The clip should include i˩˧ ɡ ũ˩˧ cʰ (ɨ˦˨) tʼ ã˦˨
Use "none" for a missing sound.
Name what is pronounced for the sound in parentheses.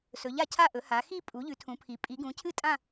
ɨ˦˨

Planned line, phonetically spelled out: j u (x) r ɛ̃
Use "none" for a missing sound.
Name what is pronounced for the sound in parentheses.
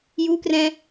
k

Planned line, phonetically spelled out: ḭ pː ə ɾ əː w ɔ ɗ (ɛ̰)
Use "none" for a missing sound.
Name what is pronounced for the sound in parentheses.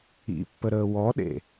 ḛ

